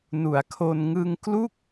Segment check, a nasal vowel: absent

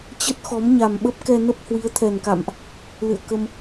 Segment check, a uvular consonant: absent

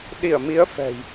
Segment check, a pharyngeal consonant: absent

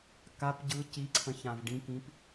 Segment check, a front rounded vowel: absent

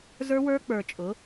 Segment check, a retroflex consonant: absent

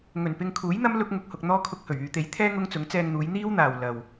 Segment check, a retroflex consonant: absent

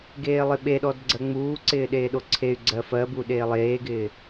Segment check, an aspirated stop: present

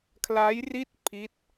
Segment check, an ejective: absent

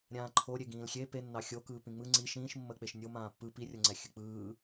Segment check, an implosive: absent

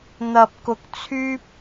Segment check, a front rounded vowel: present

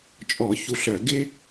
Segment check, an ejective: present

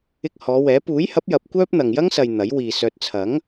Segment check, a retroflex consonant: absent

